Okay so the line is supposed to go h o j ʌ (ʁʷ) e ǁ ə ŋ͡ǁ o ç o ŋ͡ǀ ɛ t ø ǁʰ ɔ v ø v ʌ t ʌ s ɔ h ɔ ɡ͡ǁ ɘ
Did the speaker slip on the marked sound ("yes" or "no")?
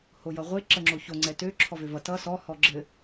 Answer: no